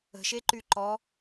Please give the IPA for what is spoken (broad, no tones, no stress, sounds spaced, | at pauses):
ə̤ ʃ e ǃ y ǃ ɔ